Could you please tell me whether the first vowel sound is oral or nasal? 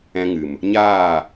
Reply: nasal